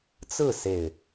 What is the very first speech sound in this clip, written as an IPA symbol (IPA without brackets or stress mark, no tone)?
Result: t͡s